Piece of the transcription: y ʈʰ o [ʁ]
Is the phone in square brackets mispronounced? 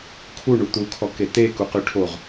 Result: no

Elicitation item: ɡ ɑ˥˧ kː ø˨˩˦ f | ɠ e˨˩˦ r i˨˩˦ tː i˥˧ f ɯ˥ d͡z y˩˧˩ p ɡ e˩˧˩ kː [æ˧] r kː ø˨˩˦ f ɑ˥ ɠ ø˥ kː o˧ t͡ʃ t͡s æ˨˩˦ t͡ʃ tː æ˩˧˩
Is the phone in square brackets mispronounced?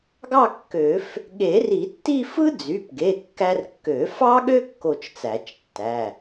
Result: no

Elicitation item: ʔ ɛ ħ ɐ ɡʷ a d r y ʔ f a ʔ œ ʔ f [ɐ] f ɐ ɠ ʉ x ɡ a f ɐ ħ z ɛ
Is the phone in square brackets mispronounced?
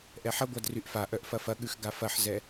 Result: no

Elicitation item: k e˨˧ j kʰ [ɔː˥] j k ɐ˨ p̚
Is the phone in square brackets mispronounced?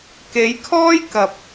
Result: no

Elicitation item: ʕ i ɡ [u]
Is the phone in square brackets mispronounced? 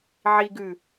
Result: yes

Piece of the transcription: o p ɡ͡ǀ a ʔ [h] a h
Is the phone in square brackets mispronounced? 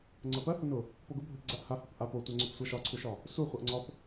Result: no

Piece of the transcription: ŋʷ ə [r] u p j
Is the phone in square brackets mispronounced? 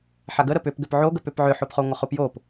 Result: yes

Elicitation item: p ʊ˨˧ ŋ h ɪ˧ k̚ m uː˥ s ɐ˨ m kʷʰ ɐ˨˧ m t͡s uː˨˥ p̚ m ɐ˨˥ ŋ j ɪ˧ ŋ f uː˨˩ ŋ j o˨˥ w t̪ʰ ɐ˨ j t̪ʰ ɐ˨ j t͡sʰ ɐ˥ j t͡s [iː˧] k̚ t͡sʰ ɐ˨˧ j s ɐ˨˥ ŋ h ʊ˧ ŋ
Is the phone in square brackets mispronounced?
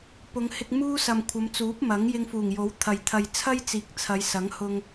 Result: yes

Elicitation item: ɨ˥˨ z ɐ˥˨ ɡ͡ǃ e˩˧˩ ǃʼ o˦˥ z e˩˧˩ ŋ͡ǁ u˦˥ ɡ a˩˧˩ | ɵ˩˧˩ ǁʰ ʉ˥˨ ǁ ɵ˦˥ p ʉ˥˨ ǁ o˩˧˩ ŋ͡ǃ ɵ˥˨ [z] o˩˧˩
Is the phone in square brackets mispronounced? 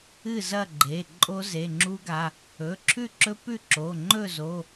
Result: no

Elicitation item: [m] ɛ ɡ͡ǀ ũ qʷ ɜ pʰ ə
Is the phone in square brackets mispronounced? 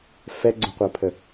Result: yes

